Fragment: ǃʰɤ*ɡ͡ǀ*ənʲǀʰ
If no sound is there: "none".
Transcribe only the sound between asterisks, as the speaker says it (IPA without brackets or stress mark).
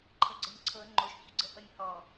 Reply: ɡ͡ǀ